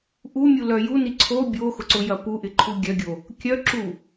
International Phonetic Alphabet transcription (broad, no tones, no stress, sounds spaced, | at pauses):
ʔ u mʲ u l œ j u n i ǀʰ o bʲ o x ʊ ǀ ʊ j ɐ p u ʔ ɪ ǃʰ u ɡʲ œ ɡʲ o | kʲ œ ǁ u